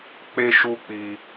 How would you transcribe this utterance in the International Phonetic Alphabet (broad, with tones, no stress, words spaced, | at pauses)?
k͡pe˦ʃu˦k͡pi˧